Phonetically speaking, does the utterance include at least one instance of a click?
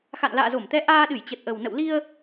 no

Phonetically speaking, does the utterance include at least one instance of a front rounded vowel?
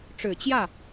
no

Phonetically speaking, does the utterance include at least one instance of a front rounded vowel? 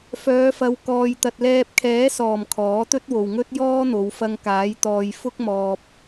yes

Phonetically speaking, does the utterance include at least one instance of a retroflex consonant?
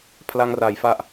no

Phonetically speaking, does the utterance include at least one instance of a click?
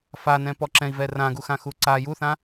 yes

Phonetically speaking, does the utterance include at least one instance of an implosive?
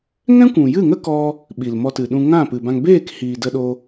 yes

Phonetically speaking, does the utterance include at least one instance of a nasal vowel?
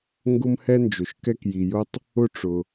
no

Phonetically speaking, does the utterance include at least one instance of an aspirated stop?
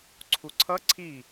yes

